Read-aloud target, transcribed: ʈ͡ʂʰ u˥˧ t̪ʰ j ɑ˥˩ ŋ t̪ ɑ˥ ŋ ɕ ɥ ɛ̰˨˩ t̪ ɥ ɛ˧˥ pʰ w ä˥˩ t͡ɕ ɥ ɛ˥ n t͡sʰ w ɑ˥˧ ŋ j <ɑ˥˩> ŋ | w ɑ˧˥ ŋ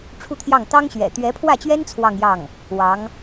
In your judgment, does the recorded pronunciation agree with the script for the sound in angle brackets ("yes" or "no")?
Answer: yes